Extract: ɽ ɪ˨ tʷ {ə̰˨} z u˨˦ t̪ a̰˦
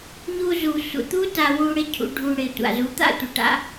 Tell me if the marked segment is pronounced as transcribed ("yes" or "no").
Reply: no